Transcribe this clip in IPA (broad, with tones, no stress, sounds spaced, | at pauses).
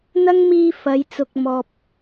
n̪ ɐ˥ ŋ m iː˧ f ɐ˨˧ j t͡s ʊ˨ k̚ m ɔː˨ p̚